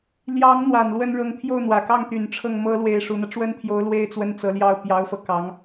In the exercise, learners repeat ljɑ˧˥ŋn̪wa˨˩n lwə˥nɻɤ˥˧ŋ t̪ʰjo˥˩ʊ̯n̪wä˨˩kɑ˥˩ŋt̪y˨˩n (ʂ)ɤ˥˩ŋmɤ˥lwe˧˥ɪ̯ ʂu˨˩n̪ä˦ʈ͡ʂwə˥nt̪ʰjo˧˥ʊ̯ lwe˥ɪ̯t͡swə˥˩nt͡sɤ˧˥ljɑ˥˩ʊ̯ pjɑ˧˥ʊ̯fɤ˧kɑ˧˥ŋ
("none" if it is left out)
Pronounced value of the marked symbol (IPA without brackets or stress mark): ʈ͡ʂʰ